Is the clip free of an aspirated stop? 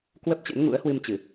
yes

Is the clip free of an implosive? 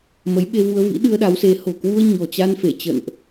no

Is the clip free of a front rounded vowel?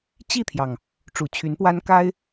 no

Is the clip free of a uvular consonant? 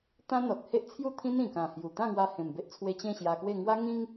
yes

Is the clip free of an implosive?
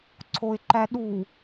no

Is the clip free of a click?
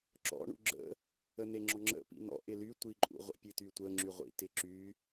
no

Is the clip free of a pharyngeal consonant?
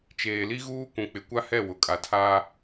yes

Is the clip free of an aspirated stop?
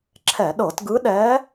no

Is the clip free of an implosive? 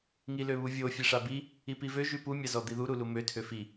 yes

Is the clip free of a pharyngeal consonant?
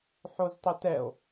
no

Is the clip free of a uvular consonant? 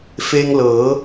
yes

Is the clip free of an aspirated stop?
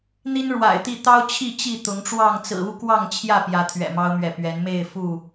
no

